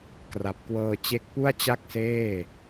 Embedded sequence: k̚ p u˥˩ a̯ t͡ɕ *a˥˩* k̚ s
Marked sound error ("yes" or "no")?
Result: no